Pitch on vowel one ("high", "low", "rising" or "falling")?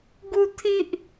high